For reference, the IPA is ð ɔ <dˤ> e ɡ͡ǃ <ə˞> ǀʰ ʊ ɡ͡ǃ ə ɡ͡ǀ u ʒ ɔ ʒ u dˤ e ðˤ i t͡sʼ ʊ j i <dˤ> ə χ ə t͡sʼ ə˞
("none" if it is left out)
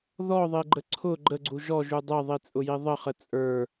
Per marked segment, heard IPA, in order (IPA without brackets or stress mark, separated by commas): ðˤ, ə, ðˤ